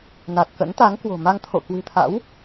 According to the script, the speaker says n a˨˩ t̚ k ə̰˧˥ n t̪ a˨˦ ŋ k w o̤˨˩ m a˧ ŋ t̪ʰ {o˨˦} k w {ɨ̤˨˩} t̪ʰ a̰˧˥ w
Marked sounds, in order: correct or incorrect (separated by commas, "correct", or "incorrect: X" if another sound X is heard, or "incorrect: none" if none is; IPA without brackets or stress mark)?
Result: incorrect: o̰˧˨, correct